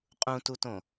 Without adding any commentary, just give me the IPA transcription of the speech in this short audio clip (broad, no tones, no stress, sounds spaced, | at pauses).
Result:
qʼ ũ t u t õ